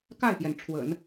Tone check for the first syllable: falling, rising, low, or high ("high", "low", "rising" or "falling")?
falling